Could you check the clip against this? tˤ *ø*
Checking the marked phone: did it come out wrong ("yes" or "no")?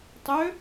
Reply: no